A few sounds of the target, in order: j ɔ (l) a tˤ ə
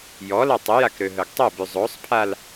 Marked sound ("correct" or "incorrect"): correct